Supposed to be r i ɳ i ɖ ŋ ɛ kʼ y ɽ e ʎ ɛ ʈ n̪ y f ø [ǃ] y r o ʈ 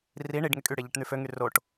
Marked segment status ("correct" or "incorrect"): incorrect